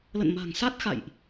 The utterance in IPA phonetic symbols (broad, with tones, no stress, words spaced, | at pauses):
lə̰˧˨nma̤˨˩ŋsa˦˥t̚ xa̰˧˨jʔ